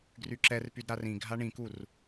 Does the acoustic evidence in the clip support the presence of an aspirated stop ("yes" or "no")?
no